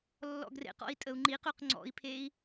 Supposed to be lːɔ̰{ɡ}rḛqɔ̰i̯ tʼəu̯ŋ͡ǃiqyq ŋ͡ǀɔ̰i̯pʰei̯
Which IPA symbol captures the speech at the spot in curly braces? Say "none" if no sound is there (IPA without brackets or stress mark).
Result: ɡ